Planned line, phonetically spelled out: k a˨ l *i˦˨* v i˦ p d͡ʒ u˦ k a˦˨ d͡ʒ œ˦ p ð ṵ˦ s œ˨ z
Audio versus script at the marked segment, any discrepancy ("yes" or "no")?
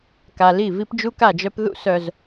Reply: no